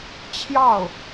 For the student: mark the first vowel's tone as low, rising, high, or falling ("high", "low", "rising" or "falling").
falling